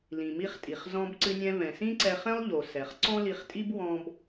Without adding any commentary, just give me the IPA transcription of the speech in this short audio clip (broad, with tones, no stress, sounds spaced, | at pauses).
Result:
l ĩ˩ m i˧ χ tʼ i˩ χ z ɔ̃˧ b ǀ ɨ˧ nʲ ɛ̃˧ v ɛ̃˩ s ĩ˥ ǀ ɛ˧ χ ɛ̃˥ lˠ ʎ o˩ s ɛ˩ χ ǀ ɔ̃˥ l i˧ χ tʼ i˥ b w ɔ̃˧ b